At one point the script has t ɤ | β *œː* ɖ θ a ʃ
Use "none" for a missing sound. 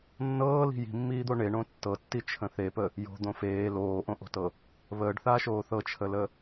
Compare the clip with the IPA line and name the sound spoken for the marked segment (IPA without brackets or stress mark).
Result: əː